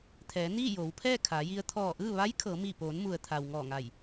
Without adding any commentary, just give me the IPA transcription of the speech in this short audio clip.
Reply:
t̪ʰ ɛː˩˧ n iː˥˨ j oː˩˧ w pʰ ɛː˥˨ kʰ aː˩˧ j i˧ ə̯ t̪ʰ ɔː˧˩ ʔ ɯː˥˨ ʋ a˧˥ j kʰ ɤː˩˧ m iː˧˩ p oː˩˧ n m u˩ ə̯ t̪ʰ a˩ w ŋ ɔː˧˩ ŋ a˧˩ j

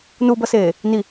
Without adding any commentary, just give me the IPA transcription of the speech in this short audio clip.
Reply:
n u b ʌ s eː | n i

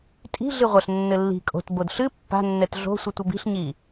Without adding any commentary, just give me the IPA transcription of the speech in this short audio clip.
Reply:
tʼ i̤ ɮ ɨ ʁʷ ɐ ɬ nː ɘ lː i̤ kʼ o̤ t b o d ɬ ɨ pː a̤ nː ɛ t ɮ o̤ sʷ ɨ tʷ ɐ b i̤ ɬ ɲ i

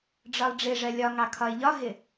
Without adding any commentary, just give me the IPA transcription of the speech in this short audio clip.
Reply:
ɖ͡ʐ ɒ lˠ ɖ͡ʐ ɪ ʐ ɜ lʲ ɒ ŋ ɑ kʰ ɒ ɪ̯ ʎ ɒ ɦ ɪ

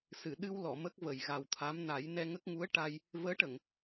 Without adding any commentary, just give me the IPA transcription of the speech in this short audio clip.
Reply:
s ɨ˨˩˨ ɗ ɨ˧ w l ɔ˨˩˨ m ə˦˥ k̚ v ə˨˩ j ɣ a˨˩ w t̪ʰ a˧˥ m n a˨˩˦ j n ɛ˧ ŋ ə˦˥ k̚ ŋ u˧˥ ə̯ ʈ a˧ j | v əː˧˥ ʈ ə˨˩˨ ŋ

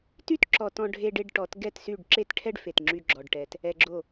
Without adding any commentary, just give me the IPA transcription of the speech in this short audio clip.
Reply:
t y˥ t ǁ ɔ˧ t ɔ̃˧ ɖʱ e˧ ɖ e˧ ɖ ʈ ɔ˩˥ t ɡ ɛ˥˩ t s y˥˩ ɖ ǁ e˥ t ʈʰ ɛ˥ ɖ f e˩ t ŋ͡ǁ y˧ ɡ͡ǁ ɔ˩ ɖ ʈ ɛ˩ t | ɛ˧ ɡ͡ǁ o˥˩

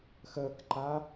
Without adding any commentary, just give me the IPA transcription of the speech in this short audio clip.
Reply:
x əː k ǃ a

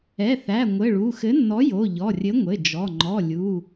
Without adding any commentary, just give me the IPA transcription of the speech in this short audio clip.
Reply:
ɛ˩˧˩ θ æ˩˧˩ ŋʷ ɘ˩˧˩ ɭ u˩˧˩ x ɘ˨˥ nː ɔ˨˥ j o˩˧˩ ʎ ɔ˩˧˩ rʲ ɘ˨˥ ŋʷ ɘ˩˧˩ d͡ʒ ɔ˩˧˩ ŋ͡ǃ ɔ˩˧˩ lʲ u˩˧˩

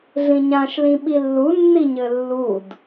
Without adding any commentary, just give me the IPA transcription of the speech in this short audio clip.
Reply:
ɮ ĩ ɲ ã ʃ l ĩ ɓ i lː u nː i ɲ ɘ lː u d

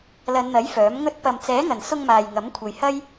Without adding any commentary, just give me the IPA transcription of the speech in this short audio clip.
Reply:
l ɐ˨˧ n n̪ ɐ˨˥ j f œː˨˥ m ŋ ɵ˥ t̚ p ɐ˧ m t͡s ɛː˨˥ ŋ ɐ˨˩ n s ʊ˧ ŋ m aː˨ j ŋ ɐ˨˥ m kʷʰ ɐ˨ j h ɐ˥ j

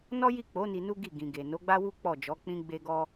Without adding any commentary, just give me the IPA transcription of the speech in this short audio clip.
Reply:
n ɔ˦ j i˦˨ k͡p o˨˦ n i˧ n u˦ ɡ i˦˨ ɡ ĩ˨ ɡ e˨ n o˨˦ ɡ͡b a˦ w u˦ k͡p ɔ˦˨ d͡ʒ ɔ˨˦ k͡p ĩ˦ ɡ͡b e˦ ɡ ɔ˦

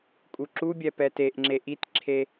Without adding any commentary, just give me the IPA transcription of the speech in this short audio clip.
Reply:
kʼ u ǁ u bʲ ɛ p ɛ t e ʔ ŋ͡ǁ e ʔ i t ǁʰ e

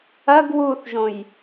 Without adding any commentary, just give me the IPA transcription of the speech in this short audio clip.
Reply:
ɐ ɡ w u θ ʒ õ j

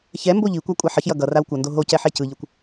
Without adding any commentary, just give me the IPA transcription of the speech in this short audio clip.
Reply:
ç ɛ m b o ʎ i kʷ a kʷʼ a ħ ʌ ç j ʌ ɡ ʌ r a w kʷ ʌ n d o ɦ o c ɛ ħ e c ɯ ʎ ɯ kʷ

